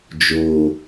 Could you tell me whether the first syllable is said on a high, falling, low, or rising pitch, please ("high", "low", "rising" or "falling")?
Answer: low